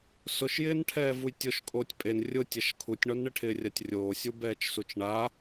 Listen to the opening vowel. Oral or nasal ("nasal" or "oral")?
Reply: oral